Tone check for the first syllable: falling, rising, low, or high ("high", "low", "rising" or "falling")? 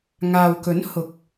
low